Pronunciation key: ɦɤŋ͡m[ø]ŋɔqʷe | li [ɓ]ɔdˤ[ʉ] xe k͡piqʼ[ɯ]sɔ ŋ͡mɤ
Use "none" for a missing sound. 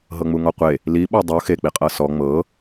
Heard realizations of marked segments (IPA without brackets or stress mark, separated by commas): u, ɓ, u, ɤ